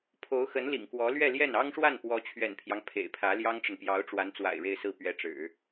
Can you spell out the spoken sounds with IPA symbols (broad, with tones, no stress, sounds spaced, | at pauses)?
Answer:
pʰ o˧˥ ʊ̯ x ə˧˥ n l ḭ˨˩ ŋ k w ɔ˧˥ l ɥ ɛ˥˧ l j ɛ˥˩ n ɑ˥ ŋ ʂ w a˥˩ n p w ɔ˧˥ t͡ɕʰ ɥ ɛ̰˨˩ n pʰ j ɑ˦ ŋ pʰ ḛ˨˩ ɪ̯ pʰ ä˧˥ l j ɑ˥ ŋ ʈ͡ʂ ə˨ n p j ɑ˧˥ ʊ̯ ʈ͡ʂ w a˧˥ n t͡s w a̰˨˩ ɪ̯ ɻ e˥˧ ɪ̯ s ɹ̩˥˩ p ɥ ɛ˧˥ ʈ͡ʂ ɻ̩˨˩˦